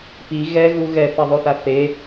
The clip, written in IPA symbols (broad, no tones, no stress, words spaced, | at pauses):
pi ɣɛɣu ɣɛθɐðˤoθa θe